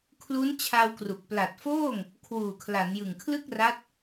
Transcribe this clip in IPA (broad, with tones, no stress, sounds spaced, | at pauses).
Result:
kʰ l u˦˥ n t͡ɕʰ a˧ w k r u˨˩ k̚ p l a˨˩ t̚ f oː˥˩ ŋ | kʰ w uː˨˩ kʰ l a˩˦ n j ɯ˨˩ ŋ kʰ l ɯ˥˩ k̚ r a˦˥ t̚